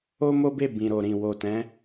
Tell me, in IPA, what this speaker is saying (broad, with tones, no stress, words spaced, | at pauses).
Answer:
o˦mo˦be˦˨ bĩ˨ɾo˨ɾĩ˨ wo˨tɛ̃˨˦